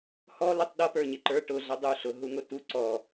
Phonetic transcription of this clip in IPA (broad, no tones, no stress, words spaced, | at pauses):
hɔ lɪtˤɗʌpə˞ ɲɪǃə˞ ʈʊɮʌ dˤuɬʊ ɦuŋʊtu ǀɔ